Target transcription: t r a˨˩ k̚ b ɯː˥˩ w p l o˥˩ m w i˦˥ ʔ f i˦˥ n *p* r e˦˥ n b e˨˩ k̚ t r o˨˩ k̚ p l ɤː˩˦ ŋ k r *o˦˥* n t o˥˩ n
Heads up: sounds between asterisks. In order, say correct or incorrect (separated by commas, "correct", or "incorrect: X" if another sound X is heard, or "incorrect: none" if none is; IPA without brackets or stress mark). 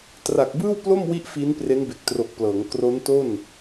correct, correct